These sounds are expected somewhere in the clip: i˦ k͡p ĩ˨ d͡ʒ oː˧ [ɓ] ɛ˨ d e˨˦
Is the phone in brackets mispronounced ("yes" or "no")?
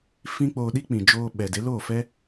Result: no